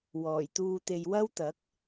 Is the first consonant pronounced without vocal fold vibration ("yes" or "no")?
no